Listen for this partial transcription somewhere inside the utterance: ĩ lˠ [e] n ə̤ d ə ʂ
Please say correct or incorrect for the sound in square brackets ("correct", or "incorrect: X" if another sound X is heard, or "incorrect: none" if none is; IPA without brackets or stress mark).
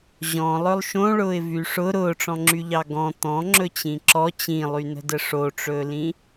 incorrect: y